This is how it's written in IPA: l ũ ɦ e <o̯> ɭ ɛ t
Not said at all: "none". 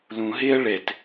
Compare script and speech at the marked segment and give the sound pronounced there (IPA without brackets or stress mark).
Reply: ɐ̯